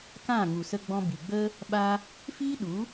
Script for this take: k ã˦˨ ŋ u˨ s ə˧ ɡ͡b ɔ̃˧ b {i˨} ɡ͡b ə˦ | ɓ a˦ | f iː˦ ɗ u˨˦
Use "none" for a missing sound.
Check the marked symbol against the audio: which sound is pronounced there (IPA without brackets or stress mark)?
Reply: i˨